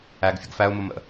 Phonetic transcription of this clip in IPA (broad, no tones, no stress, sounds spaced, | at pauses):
æ ɡ fʲ ə ɡ f æ ʊ̯ m ʊ m ə̰